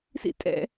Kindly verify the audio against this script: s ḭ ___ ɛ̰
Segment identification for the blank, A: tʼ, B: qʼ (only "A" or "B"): A